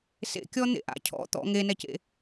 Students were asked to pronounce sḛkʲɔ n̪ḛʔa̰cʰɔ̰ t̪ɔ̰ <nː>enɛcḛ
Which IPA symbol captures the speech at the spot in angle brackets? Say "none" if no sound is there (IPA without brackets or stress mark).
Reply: ŋ